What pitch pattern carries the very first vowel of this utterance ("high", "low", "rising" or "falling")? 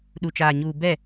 low